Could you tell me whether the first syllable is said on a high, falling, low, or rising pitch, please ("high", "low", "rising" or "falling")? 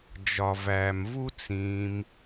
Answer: low